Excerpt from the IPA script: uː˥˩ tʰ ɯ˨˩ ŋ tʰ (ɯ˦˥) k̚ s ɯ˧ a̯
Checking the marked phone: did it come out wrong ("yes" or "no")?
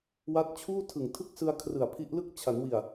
yes